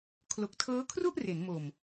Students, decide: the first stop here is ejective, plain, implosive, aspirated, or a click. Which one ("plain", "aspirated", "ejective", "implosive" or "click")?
aspirated